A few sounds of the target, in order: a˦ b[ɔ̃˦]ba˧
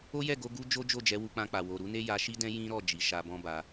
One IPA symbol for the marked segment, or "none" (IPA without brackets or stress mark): ɔ̃˦